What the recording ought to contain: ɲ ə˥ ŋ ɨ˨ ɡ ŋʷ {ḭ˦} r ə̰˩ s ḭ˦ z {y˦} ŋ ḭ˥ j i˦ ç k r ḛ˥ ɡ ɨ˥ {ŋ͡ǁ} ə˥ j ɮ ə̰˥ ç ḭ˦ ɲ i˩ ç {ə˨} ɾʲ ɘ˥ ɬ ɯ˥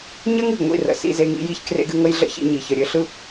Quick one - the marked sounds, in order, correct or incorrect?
correct, incorrect: e˦, incorrect: ŋ, correct

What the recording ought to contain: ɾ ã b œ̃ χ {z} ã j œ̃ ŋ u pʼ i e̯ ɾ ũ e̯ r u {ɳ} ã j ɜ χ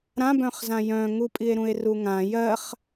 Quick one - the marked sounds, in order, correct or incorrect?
correct, incorrect: ŋ

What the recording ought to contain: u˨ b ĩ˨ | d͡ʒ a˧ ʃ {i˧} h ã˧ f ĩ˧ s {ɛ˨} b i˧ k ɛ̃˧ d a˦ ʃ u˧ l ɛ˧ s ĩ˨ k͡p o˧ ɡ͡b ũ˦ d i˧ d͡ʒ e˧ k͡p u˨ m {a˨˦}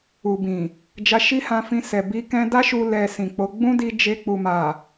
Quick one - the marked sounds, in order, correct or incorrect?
incorrect: i˦, correct, incorrect: a˨

